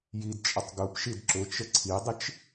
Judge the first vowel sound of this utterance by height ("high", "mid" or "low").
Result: high